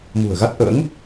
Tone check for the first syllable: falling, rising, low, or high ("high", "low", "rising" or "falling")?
low